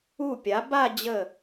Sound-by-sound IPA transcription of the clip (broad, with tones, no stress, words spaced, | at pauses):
u˧˩pʲa˩˧ ba˥˧ d͡ʑə˧˩